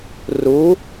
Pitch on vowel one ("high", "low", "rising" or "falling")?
rising